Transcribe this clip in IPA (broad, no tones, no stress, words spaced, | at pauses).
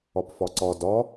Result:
ɒpfɒǀɒ dɒ